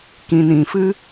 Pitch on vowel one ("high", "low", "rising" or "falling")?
low